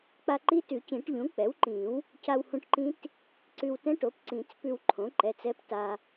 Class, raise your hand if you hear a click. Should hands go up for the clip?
yes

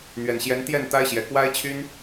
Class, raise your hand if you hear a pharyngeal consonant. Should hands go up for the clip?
no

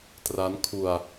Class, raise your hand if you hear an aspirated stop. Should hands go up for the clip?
yes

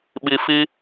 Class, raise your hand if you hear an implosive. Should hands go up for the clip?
yes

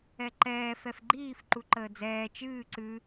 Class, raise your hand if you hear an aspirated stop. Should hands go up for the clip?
no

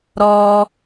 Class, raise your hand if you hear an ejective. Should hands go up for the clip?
no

